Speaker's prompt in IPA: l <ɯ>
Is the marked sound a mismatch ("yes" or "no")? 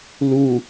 yes